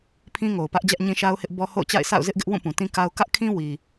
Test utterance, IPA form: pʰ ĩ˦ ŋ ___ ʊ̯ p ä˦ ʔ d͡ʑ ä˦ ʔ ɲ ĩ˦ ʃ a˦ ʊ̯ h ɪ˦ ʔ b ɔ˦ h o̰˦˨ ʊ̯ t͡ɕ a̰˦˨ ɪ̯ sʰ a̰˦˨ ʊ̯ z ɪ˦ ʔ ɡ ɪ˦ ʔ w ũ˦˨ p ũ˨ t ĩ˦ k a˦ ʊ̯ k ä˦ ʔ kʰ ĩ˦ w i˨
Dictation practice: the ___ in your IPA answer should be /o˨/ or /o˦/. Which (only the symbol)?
o˨